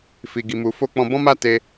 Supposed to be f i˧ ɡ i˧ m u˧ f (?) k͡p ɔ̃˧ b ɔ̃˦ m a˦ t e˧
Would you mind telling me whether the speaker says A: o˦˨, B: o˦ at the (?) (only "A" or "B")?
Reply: B